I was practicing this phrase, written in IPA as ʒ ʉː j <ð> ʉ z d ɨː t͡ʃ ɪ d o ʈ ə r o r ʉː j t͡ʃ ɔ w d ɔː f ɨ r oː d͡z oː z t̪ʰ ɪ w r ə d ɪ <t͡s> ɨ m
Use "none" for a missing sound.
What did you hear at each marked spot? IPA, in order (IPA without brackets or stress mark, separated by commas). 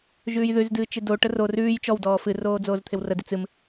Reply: ð, t͡s